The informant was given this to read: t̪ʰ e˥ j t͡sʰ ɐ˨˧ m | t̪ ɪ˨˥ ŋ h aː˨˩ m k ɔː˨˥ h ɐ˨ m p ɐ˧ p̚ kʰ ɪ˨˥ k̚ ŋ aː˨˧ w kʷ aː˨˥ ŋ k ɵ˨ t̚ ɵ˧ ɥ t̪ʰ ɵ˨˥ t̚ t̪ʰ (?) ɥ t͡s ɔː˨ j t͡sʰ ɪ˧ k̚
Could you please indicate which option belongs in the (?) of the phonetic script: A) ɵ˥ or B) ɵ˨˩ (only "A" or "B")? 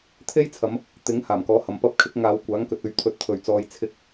B